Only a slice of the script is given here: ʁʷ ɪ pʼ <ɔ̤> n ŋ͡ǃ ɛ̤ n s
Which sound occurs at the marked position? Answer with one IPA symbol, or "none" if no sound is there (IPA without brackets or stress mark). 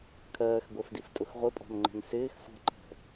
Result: ɔ̤